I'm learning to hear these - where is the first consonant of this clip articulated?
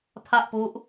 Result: lips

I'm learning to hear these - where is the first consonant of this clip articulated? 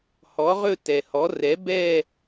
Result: throat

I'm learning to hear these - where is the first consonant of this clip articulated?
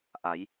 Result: throat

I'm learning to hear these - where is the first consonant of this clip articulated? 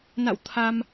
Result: tongue tip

